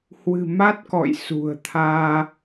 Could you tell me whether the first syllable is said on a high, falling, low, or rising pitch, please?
low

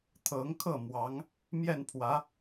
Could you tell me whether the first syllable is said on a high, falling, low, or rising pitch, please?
rising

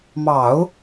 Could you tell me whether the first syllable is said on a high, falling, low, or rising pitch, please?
low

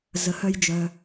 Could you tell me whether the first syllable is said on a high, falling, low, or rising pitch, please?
low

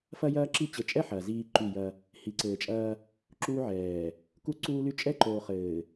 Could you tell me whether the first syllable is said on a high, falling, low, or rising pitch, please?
high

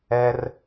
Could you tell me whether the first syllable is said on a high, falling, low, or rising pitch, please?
high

